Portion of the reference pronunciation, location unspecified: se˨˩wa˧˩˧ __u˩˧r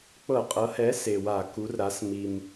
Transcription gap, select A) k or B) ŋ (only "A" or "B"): A